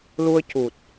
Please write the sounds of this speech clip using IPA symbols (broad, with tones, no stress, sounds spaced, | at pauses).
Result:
l u˧ ə̯ c u˨˩ t̚